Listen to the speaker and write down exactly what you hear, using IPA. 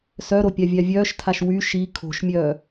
s œ ɾ o pʲ a vʲ a vʲ œː ʃ tʰ a ʃ w y ʃ i kʰ o̤ ʃ mʲ œː

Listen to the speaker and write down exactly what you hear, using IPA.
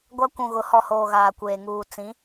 ɡʷ a˦ kʷ ũ˨ ɣ ʊ˨˦ h ɔ˨ h oː˨ ɣ aː˨ kʷ eː˨ ŋ uː˨ t͡s ĩ˨˦

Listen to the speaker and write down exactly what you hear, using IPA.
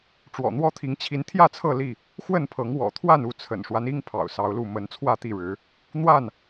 ʈ͡ʂ w ɔ̰˨˩ n̪ w ɔ˦ t̪ʰ i˨˦ ŋ t͡ɕʰ i˨˦ n t̪ʰ j ä˥˨ t͡sʰ ɤ˥˨ l i˥˨ | x w ə˥˨ n pʰ ɤ˨˦ ŋ w ɔ̰˨˩ t̪ʰ w a˥˨ n u˥˨ t͡sʰ ə̰˨˩ n ʂ w a˦ n i˦ ŋ pʰ ɑ̰˨˩ ʊ̯ s ɑ˨˦ ʊ̯ l u˥˨ m ə˨˦ n t͡sʰ w ä˥˨ t̪ i˥˨ ɻ ɻ̩˨˦ | n̪ w a˥˨ n

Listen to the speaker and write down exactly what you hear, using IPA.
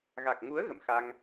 ɣ a˨˩ k̚ ŋ u˨˦ ə̯ ɣ ə̰˧˨ m x a˧ ŋ

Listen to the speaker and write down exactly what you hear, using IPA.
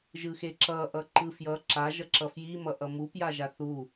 ʒ ɯ x e ǁ ʌ ʔ ʌ ǃ ɯ f j ʌ ǁ a ʒ ʌ ǁ ʌ f j i m ʌ ʔ ʌ m u p j a ʒ a θ u

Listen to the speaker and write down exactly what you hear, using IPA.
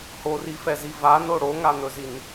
h o r i f ɛ z i v a n o ɽ o ŋ a n̪ ɵ z i n

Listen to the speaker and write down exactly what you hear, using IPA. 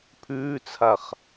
pʰ ʉː t͡sʰ a χ

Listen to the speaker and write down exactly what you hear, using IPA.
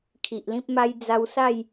kʰ i˨ ʔ l ĩ˦ p̚ m a˦ j d͡z a˧ w s a˥˧ j

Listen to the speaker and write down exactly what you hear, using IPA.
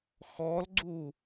x ɔ l ɡ͡ǀ u

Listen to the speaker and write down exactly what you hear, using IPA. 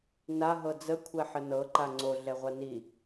n a ɦ ɤ d͡z ə kʷʰ ɛ ħ ə n ɤ ǃ a ŋ͡ǀ o ɮ ɛ ʁʷ a n i

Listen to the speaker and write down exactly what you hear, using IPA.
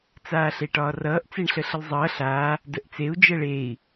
t͡s aː ɬ e ʈ ɒː r ʌː ʔ t͡s e ɳ ɬ ə ɬ ə l zˤ ʌː ɬ a | d ə ʔ t͡s e u̯ d͡ʒ ə ɭ e i̯

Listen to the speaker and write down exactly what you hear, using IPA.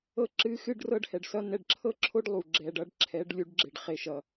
ɤ˦ ǁ ɨ˦ x ɨ˦ ɖ r ɤ˦ ɖ h ɛ˨ ɖ s ʌ˦ n ɛ˨ ɖ ǁʰ ɤ˦ ǁʰ o˦ ɖ lˠ u˨ ɡ͡ǁ ɛ˨ ɖ ʌ˦ ɖ ǁʰ ɛ˨˦ ɖ lʲ u˨˦ ɖ ɡ͡ǁ e˨ ɖ χ e˨ ʃ ʌ˨

